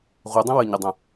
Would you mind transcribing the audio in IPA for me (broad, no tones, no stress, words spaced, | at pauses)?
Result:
ʁudˤə̃ wəɲədˤã